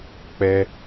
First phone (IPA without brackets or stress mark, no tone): k͡p